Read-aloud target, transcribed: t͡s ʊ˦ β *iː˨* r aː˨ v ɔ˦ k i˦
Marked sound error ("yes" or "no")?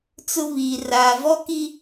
no